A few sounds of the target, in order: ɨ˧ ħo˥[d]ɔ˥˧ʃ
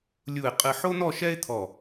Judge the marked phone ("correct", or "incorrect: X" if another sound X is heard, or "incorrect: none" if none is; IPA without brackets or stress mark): incorrect: n̪